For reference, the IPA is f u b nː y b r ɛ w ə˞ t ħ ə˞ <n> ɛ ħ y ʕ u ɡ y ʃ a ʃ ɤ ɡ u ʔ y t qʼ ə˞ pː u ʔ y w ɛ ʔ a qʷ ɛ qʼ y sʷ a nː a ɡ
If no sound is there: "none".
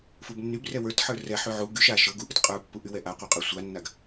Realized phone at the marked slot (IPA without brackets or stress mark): r